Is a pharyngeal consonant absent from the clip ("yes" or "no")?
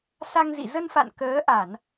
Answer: yes